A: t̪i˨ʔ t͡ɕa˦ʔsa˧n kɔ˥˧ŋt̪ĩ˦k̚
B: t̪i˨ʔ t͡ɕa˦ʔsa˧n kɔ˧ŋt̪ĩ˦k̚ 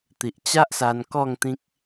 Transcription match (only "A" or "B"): A